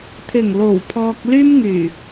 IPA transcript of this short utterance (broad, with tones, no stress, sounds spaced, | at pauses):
t̪ʰ ɪ˨˩ ŋ l o˨˩ w pʰ ɔː˧ k̚ l yː˥ m ŋ yː˨˩